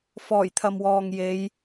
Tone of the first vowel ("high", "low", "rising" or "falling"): low